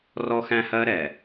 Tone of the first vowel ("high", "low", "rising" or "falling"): high